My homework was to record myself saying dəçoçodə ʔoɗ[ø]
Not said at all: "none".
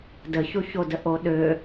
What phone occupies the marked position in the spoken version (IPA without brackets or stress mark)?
ø